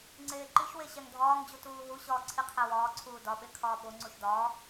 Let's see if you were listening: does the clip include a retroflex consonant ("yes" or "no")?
no